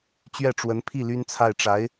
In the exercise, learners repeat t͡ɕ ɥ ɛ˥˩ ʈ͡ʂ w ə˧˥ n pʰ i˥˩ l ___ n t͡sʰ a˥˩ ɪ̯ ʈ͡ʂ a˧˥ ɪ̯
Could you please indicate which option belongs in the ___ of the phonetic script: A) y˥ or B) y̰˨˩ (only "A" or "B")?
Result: A